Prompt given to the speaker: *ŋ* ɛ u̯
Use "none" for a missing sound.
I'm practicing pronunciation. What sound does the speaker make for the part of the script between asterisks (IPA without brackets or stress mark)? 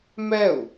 m